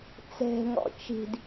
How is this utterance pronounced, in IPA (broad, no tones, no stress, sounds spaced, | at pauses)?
t͡s ɛ̤ ŋ ɔ̰ t͡ʃ i̤ d